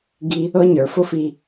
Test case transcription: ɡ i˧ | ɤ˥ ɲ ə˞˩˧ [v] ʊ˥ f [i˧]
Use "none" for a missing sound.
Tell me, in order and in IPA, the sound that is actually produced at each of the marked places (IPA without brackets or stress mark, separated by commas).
f, i˧